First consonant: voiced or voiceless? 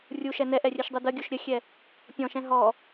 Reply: voiced